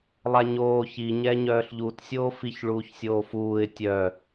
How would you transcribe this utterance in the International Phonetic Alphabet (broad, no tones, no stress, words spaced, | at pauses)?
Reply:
lˠaɲoː çi ɲɛːɲœːɬʎut sʲoːfiç ɭuːçsʲoːfuːɪ̯ tʲœ